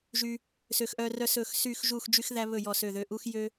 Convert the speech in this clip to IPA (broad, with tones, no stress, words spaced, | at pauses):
ʒy˥ | sø˥xʔœ˥ rœ˥sɵ˥˧x sy˥˧xʒu˥˧x d͡ʒy˥xðæ˥βɵ˥˧ jɔ˥˧sø˥˧ðø˥˧ ʔu˥xjø˥